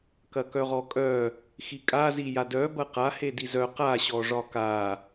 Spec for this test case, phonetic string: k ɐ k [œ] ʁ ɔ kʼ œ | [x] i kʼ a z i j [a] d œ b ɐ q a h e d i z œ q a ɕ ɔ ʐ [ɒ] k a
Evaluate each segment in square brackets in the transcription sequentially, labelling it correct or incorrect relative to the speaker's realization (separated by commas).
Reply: correct, correct, correct, correct